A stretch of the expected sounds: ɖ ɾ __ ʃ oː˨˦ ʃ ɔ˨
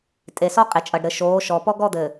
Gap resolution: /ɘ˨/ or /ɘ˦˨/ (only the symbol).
ɘ˨